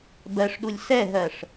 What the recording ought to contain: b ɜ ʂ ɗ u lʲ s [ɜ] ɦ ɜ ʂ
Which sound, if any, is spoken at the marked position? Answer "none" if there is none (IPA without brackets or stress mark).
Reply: ɛ